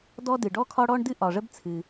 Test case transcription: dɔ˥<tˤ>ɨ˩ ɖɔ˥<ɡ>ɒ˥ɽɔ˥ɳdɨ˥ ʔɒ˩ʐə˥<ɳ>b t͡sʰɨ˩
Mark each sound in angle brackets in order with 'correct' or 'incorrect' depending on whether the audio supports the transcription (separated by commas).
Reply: incorrect, incorrect, incorrect